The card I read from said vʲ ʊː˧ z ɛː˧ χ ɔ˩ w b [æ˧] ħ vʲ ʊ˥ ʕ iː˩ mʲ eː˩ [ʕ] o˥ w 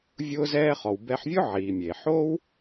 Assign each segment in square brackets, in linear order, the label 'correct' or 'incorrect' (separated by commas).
incorrect, incorrect